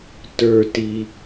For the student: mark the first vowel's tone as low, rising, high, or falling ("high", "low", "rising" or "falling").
low